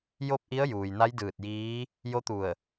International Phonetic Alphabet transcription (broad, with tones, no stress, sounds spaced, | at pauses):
j o˥˨ p̚ ʔ i˧˥ ə̯ j uː˩ j n a˧˥ j d ɯː˧˩ t̚ j iː˧˥ | j o˧˥ t̪ u˧˩ ə̯